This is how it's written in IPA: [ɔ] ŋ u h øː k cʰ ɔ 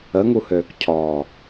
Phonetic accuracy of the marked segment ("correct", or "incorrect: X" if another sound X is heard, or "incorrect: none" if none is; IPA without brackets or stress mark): incorrect: ə